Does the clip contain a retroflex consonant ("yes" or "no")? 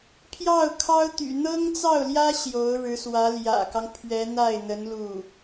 yes